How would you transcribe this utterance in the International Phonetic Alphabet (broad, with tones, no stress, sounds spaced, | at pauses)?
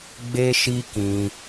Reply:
ɡ͡b e˦ ʃ i˦ k ĩ˧